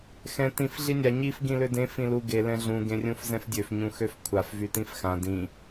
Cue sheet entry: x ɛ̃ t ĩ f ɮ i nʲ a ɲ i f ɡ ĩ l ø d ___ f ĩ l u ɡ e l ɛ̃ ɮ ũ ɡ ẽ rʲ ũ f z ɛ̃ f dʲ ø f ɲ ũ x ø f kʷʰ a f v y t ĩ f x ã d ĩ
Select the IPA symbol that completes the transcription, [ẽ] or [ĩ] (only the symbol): ẽ